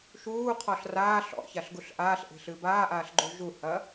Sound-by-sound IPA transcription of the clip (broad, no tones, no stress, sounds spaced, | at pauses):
ʃ uː qʰ ɔ ɬ r aː ɬ ɔ̰ ç a ɬ ɡ u ɬ ʔ aː ɬ ʔ e̤ ɬ ɨ b aː ʔ aː ɬ ɡ͡ǃ u ʒ u h ɐː